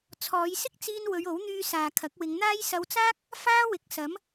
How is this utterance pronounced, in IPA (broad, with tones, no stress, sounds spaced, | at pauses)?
t͡sʰ ɔː˨˧ j s ɪ˥ k̚ t͡s iː˧ n w ɵ˨˧ ɥ o˨˥ w n̪ yː˧ s aː˨ kʰ ɐ˨˥ k̚ w ɪ˨˧ ŋ n̪ aː˥ j s ɐ˧ w t͡s aː˥ k̚ | f aː˥ w ɪ˨˥ k̚ s ɐ˨˥ m